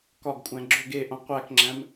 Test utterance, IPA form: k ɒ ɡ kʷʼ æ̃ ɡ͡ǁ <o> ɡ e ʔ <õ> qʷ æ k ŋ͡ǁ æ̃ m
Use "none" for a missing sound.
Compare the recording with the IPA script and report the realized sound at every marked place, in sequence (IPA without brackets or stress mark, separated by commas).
o, õ